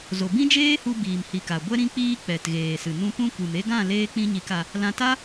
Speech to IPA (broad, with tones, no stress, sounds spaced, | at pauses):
z o˨ b ĩ˦ d͡ʒ eː˦ h u˧ b iː˨ m h i˨ k a˨ ɡʷ ɛ˦ ɾ ĩ˦ k͡p iː˦ k͡p ɛ˨ t ɣ eː˨ s ɨ˨ n ũ˧ p ũ˧ kʷ ɨ˨ m e˧ ɡ ã˦˨ l eː˦ k͡p ĩ˦ ɲ i˧ k a˧ | l ã˧ t a˦